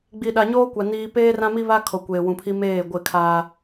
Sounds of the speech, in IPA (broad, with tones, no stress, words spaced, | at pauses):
ɡ͡bi˨ɗa˨ ɲoː˦kʷa˨ niː˨ peː˦rã˦mi˦βa˦ kʰo˨kʷeː˨wũ˨pʰi˦ meː˦˨ɡʷɪ˦˨kʰaː˦